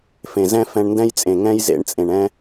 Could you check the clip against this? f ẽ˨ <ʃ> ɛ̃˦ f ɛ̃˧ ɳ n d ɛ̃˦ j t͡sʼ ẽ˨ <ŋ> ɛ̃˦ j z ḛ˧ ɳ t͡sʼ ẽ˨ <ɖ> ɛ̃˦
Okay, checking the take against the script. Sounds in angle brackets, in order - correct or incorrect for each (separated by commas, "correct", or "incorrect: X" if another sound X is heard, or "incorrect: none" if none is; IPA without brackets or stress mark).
incorrect: z, correct, incorrect: ɳ